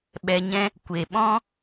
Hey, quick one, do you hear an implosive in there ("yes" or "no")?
yes